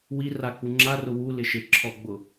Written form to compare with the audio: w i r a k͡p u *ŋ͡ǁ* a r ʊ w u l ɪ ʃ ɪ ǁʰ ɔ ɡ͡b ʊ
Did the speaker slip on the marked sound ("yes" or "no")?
no